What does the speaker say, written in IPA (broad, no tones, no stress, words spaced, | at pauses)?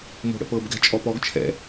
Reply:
mo̤ɽə̰pɤb ɡɛ̤t͡ʃʼɔpɔɡ t͡ʃʰɛ̰